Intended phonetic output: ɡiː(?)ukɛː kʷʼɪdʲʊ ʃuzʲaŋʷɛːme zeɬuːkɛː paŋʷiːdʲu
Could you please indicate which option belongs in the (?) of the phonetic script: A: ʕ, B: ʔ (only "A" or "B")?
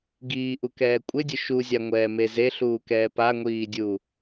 B